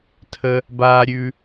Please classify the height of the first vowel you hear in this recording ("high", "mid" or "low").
mid